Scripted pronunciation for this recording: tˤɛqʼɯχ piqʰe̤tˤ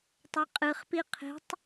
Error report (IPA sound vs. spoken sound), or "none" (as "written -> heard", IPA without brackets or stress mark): none